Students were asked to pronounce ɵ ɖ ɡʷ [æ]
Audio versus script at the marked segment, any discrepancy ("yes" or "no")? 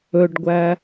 no